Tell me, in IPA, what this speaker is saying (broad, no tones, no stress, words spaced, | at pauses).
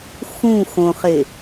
xũ xõχe